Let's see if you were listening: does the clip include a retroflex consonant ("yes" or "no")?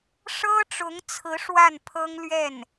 yes